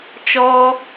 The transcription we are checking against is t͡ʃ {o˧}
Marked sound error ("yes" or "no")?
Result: yes